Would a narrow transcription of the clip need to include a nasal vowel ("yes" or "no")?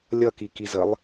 no